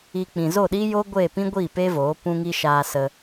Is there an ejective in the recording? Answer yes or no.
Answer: no